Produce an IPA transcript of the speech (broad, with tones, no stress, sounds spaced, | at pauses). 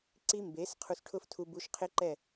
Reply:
ǀ i˦ m b e˨˦ s qʰ u˧ s ʈʰ ʊ˦ f tʰ u˧ b u˧ ʃ qʰ ɪ˦ ǃ ɛ˦˨